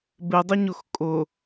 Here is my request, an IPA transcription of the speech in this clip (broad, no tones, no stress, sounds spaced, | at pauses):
b ɪ dˤ ɪ ɲ ʊ x kʼ ʊ